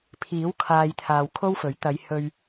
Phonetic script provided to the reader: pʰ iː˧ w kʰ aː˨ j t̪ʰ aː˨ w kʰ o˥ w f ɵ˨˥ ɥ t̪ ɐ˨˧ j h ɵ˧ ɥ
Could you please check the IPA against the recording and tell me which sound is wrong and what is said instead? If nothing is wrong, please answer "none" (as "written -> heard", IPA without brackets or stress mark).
iː˧ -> iː˨˥